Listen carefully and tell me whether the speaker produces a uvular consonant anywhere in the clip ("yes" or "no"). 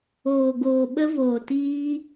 no